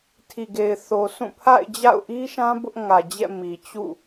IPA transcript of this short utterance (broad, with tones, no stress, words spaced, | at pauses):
tʰi˨ɡe˨ɪ̯θo˨sʰũ˦˨ pʰa̰˦˨ɪ̯ d͡ʑa̰˦˨ʊ̯ʔi˦ʃã˦ bʊ˦ʔ ŋä˨d͡ʑɛ̰˦˨ mi˨t͡ɕṵ˦˨